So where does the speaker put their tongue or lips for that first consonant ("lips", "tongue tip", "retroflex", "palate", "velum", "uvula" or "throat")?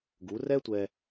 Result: velum